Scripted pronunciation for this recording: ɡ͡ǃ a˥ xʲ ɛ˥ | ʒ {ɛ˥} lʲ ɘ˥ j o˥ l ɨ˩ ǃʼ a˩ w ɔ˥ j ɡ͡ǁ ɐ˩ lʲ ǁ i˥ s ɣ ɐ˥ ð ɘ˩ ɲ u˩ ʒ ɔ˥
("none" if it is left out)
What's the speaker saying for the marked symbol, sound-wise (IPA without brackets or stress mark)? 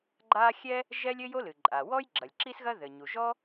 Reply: ɛ˥